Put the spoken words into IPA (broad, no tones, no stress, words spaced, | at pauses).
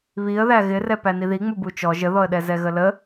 βiə̯ðæ ɣɪrɛpæ niðiŋ͡mu but͡ʃɔ ʒəðɔə̯ɗɛ zɛɣələ